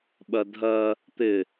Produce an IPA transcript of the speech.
ɓ ɜ dʱ ɜ | t̪ ɪ

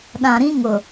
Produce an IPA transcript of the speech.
ɗ ã˨ ɾ ĩ˦ ŋ ʊ˨

